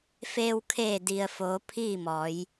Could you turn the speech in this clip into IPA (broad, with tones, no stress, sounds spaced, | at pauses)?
f eː˧ w kʰ eː˧˩ d i˩ ə̯ f oː˩˧ pʰ iː˥˨ m ɔː˩˧ j